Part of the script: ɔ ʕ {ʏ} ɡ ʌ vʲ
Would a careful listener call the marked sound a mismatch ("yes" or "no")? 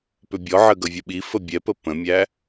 yes